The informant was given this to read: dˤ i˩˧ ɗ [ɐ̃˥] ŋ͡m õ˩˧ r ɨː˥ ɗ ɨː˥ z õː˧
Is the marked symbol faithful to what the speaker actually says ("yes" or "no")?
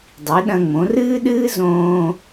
no